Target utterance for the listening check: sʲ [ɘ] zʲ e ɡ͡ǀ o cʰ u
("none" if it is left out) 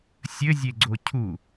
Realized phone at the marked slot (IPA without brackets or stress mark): ɘ